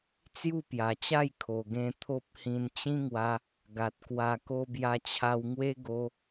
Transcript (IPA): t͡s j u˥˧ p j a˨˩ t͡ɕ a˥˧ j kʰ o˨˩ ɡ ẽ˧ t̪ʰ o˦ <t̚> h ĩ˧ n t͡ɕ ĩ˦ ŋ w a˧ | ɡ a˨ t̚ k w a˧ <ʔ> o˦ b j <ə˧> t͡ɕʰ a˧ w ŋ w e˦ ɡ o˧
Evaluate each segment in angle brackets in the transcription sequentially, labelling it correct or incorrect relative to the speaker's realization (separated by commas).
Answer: incorrect, incorrect, incorrect